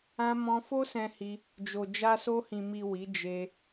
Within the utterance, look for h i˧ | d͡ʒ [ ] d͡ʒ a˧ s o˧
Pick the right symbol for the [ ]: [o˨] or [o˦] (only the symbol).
o˨